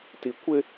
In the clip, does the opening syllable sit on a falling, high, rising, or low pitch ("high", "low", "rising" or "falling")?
low